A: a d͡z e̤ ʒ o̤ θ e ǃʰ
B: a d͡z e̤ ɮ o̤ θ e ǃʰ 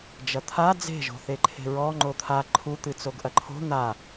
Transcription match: A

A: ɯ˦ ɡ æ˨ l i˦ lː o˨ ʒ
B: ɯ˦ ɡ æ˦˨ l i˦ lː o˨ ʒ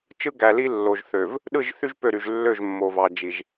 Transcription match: A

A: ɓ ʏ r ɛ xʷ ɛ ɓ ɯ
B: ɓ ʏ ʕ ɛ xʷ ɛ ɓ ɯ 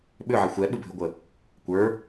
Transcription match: B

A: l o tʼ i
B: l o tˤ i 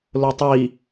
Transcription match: B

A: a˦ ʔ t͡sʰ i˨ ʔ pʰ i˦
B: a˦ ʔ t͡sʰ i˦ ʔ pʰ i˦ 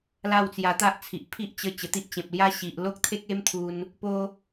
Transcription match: A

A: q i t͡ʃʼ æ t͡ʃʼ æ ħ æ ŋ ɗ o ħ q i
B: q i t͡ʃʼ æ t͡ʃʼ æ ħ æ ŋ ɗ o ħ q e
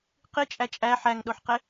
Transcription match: B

